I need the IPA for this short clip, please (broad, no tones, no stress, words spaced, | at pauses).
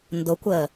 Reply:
ndʊkʷəː